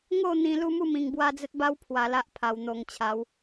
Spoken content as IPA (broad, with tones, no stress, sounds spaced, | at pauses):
ŋ o˥˧ n̪ ĩ˧ l u˦ m u˥˧ m ĩ˧ ŋ b w a˦ d͡z ə˦ t̚ b a˦ w pʰ w a˧ l a˦ ʔ pʰ a˧ w n̪ o˧ ŋ t͡ɕʰ a˨˦ w